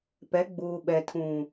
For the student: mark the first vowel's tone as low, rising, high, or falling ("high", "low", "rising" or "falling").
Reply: rising